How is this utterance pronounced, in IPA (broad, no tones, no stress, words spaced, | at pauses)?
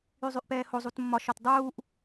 yzˤyʔpɛːho zˤutmːɒ ʃɒtdˤuːʔ